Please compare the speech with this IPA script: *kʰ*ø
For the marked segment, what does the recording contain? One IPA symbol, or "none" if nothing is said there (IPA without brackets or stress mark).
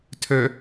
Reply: tʰ